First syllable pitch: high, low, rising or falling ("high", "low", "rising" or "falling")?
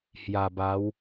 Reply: low